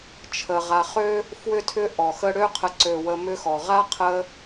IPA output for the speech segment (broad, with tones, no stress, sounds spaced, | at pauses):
t͡ʃʰ ə˨ ʁ a˨ χ ø˥ | f w ʏ˦ tʰ ʏ˦ ʔ ɔ˩ x ə˦ ɽ ø˦ qʰ ə˨ ǀ ø˩ w ə˨ m ʏ˦ x ɔ˩ ʁ a˥ qʰ ə˦